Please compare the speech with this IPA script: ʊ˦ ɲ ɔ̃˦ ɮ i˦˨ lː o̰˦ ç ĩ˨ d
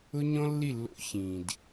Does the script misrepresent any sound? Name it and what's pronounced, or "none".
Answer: ɮ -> lː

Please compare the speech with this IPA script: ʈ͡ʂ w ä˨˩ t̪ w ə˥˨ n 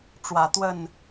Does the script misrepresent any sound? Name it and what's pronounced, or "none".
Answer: none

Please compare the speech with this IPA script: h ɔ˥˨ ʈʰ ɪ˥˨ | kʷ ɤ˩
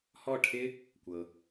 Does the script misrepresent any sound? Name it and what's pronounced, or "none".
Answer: ɪ˥˨ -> ɪ˥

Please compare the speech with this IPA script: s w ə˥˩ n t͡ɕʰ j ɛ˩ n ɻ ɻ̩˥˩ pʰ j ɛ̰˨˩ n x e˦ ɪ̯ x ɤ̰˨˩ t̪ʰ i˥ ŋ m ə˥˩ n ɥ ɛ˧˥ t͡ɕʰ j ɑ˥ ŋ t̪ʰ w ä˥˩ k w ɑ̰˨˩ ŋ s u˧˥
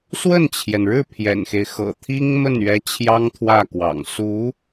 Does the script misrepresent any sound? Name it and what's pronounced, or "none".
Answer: none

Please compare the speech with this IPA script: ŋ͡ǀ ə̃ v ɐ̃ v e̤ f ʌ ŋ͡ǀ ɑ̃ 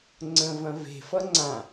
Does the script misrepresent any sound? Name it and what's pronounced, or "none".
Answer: ɑ̃ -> ã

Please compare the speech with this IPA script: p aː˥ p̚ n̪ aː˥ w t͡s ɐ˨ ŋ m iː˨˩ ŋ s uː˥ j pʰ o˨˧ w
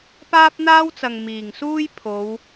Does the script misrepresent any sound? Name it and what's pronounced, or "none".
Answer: none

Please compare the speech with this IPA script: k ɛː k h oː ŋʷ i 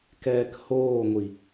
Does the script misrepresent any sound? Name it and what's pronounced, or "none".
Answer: none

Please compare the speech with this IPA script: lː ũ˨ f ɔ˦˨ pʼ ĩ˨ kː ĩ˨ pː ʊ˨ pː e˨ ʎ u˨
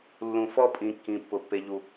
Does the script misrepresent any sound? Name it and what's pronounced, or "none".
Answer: none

